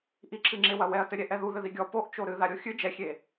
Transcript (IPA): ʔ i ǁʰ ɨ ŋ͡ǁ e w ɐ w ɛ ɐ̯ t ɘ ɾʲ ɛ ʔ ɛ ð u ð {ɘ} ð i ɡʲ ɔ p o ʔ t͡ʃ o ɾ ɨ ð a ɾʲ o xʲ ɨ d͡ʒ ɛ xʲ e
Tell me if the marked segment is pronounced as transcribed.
yes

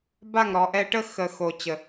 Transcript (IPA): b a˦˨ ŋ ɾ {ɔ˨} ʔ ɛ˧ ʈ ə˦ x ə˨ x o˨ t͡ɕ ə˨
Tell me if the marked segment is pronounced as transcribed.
yes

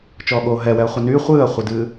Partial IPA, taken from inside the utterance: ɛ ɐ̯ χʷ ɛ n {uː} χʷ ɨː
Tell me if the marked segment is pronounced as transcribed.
no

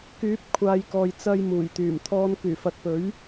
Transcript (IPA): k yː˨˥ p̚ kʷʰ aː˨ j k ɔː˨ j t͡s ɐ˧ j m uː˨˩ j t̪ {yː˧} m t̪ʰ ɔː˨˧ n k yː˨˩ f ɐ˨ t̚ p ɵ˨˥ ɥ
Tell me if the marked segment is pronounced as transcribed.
no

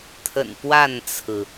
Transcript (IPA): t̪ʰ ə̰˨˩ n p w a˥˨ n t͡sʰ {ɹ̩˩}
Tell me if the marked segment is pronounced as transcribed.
yes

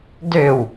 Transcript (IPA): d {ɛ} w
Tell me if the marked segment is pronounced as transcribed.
no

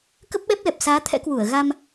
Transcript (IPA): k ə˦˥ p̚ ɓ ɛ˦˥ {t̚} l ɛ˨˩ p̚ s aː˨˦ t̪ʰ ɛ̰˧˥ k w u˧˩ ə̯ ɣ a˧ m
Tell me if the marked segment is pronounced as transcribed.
no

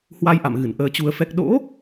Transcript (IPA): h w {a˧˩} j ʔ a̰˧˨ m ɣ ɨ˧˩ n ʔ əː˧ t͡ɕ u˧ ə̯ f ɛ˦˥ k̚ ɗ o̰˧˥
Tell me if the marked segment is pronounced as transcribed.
no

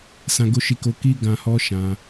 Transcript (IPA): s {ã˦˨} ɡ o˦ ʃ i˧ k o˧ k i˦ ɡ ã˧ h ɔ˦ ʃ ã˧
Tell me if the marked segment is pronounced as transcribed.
no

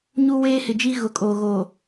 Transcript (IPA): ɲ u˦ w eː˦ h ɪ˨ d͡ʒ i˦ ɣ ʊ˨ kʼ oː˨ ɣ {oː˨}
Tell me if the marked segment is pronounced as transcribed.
yes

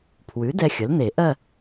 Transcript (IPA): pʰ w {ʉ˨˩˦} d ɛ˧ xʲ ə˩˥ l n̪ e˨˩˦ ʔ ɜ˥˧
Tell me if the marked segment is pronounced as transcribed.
no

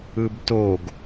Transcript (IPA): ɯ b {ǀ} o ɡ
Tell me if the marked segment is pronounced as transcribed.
no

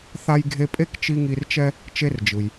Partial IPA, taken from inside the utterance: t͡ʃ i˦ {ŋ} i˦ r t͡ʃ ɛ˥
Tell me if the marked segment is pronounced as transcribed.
yes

